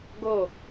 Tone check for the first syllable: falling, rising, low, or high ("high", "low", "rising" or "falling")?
falling